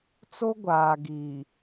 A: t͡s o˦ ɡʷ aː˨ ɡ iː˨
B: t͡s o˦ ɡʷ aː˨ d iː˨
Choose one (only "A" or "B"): A